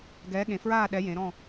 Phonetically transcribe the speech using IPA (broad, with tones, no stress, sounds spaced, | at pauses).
ɡ ɛː˨˥ ɠ ẽ˩˧ f ɹ aː˦˨ ɗ ɛ˩˧ j ẽ˩˧ ɾ ɔ̃˦˨